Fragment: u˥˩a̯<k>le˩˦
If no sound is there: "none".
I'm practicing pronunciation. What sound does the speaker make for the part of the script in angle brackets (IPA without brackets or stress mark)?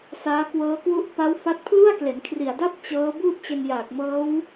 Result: k